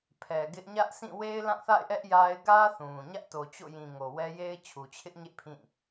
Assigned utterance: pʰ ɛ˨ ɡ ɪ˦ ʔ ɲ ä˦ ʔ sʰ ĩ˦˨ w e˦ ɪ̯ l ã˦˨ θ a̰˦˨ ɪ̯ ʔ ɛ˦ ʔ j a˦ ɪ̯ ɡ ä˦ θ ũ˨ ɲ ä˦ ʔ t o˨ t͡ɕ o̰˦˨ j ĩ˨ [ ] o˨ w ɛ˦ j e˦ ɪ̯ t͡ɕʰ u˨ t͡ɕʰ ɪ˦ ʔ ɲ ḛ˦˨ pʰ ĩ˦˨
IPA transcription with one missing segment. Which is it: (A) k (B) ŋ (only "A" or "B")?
B